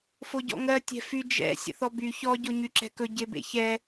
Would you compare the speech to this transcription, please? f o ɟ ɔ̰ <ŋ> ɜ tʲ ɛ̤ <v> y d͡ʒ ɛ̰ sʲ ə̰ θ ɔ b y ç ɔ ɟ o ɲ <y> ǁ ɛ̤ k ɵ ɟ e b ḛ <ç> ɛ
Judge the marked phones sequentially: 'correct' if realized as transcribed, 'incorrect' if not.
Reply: correct, incorrect, correct, correct

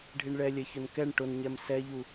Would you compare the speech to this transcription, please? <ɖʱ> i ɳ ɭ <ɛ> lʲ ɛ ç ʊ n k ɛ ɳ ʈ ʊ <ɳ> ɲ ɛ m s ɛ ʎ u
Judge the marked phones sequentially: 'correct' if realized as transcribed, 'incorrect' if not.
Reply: correct, correct, incorrect

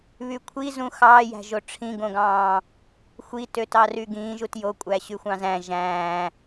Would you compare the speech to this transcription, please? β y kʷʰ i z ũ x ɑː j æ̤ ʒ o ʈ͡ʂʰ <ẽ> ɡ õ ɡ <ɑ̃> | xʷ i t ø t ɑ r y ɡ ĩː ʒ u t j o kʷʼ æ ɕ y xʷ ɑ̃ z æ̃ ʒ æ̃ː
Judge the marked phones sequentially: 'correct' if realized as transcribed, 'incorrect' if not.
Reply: incorrect, incorrect

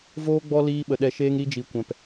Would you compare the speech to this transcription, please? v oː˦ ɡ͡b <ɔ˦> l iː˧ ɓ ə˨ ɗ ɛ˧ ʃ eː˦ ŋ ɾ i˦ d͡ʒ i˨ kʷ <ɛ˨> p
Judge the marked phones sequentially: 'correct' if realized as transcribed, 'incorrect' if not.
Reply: correct, incorrect

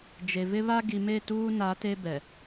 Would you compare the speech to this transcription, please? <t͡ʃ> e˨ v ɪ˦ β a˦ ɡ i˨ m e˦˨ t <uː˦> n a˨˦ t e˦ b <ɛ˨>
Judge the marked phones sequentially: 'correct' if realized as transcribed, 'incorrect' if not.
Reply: incorrect, correct, correct

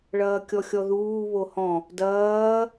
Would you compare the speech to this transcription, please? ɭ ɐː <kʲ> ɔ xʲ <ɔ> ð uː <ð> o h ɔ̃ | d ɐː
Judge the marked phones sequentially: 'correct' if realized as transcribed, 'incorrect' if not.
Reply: correct, correct, incorrect

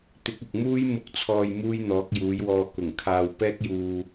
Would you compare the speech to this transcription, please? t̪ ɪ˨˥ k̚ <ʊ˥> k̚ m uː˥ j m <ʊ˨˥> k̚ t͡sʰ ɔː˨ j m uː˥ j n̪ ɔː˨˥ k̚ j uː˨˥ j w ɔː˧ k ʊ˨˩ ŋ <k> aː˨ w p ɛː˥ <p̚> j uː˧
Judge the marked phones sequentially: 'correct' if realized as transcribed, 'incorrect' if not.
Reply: incorrect, incorrect, incorrect, incorrect

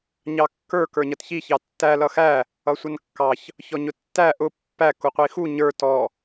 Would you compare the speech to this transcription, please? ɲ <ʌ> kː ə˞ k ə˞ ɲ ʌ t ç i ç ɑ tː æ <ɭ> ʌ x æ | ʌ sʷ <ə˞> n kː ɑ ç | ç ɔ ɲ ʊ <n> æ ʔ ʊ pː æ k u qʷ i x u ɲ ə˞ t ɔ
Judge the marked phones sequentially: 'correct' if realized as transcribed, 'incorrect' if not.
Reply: incorrect, incorrect, incorrect, incorrect

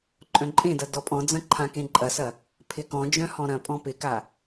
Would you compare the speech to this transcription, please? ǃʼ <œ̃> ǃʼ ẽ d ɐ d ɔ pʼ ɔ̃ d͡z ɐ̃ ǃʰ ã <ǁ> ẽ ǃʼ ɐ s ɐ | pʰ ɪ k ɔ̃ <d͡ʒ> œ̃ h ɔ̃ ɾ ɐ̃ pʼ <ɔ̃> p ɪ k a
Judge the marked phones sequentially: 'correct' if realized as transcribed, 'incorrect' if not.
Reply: correct, incorrect, correct, correct

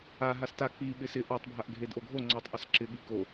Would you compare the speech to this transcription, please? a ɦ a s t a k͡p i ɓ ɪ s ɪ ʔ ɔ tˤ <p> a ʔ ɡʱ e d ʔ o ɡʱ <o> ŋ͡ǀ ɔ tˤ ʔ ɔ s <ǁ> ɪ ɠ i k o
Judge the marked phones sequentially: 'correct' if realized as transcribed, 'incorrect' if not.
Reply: incorrect, correct, correct

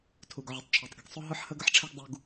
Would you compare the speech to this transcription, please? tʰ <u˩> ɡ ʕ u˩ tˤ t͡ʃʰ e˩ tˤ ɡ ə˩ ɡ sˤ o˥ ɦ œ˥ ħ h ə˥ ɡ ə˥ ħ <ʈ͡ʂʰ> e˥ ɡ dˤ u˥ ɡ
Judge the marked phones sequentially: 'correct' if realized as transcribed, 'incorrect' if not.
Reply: correct, correct

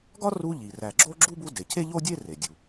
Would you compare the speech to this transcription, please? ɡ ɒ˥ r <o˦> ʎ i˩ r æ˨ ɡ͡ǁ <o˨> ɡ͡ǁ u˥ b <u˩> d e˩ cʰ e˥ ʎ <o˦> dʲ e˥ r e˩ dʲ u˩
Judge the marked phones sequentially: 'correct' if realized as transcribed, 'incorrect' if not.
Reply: incorrect, incorrect, incorrect, incorrect

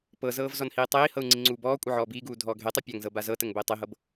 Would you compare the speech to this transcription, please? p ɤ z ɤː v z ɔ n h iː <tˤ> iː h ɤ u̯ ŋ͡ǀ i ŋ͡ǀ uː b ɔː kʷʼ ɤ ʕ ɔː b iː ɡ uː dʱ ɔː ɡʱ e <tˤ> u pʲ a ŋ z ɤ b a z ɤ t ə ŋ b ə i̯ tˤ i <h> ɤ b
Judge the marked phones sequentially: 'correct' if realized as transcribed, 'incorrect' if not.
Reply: correct, correct, incorrect

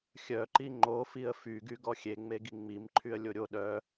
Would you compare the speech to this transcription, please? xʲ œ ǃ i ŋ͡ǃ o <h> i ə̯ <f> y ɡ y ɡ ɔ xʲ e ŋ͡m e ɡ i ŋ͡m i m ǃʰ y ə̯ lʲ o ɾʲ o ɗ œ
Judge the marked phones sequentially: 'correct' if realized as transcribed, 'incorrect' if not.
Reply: incorrect, correct

